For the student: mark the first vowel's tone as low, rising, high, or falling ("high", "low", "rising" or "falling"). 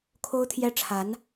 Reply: high